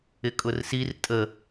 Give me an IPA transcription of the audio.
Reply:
ɪkʼʊrsir tʼə

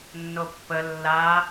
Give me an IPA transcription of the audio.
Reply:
nːopːə lːa

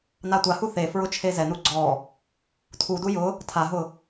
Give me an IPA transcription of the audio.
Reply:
natʷahu θefɹʊ t͡ʃʰezɛnu ɡ͡ǀɔ | tʰudu jʊ | tʰaɦʊ

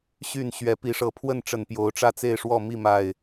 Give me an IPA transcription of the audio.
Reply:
ɕy˥˨n ɕɥɛ˨˦pi˨˦ʂɤ˨˦pʰwə˥˨n ʈ͡ʂə˨˩npjo˨˦ʊ̯ ʈ͡ʂä˦t͡se˥˨ɪ̯ʂwɔ˥˨ mi˥˨ma˨˩ɪ̯

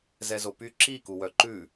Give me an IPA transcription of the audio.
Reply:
zɛzopy ǁi kuwœǃʉ

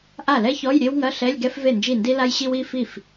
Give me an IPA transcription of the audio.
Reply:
ʔa˥˩lɛ˥çɔ˧˥˧j ɾʲe˥wŋɐ˧˥˧ɬɛ˧˥˧lʲ ɡɛ˥f ve˥˩nd͡ʒi˥˩ndi˥la˥j ɕi˥wi˧˥˧ fi˥˩f

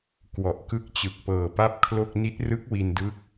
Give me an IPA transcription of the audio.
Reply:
kwɔ˨˩ʔkɯ˦˥k̚t͡ɕɯ˨˩k̚ pɤː˨˩pa˥˩p̚kʰlo˥˩k̚ ni˦˥t̚rɯ˦˥k̚ wi˧ndɯ˦˥k̚

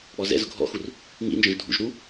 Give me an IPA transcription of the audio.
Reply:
k͡pɔzɛ̰zʊ ɡʱɔ̰xur | ŋḭnd͡ʒɔ̃ʒ dʱṵʒ ɾu

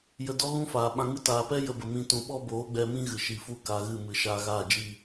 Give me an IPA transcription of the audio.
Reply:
jə˧dɔ˦ ɣũ˦faː˨ ɓã˧ŋɨ˦ taː˨pɛ˦ jə˧bə˨ mĩ˧tũ˨ ɓɔ˦boː˨˦ɡ͡bɛ˧mĩ˦ ɣɨ˨ʃi˨fu˦ ka˧ɣɨ˦˨ mɨ˨ ʃaː˧ɣaː˦˨d͡ʒi˦˨

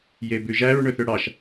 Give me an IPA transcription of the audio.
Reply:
jebʉʒæɹ ɳɵθøɽɑʃ

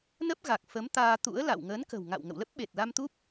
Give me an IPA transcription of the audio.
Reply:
nə˦˥p̚ɣa˨˩k̚ fə˨˦mt̪aː˧ t̪ṵ˧˥ə̯la̰˧˨w ŋəː˨˦nkə̤˨˩wŋa̰˧˨w ŋə̰˧˨wlə˦˥p̚ɓe˨˩t̚la˧m t̪u˦˥p̚

